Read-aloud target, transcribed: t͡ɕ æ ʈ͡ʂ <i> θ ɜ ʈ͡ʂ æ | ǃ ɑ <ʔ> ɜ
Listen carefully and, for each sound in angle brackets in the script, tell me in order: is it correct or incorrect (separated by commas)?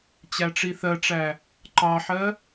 correct, incorrect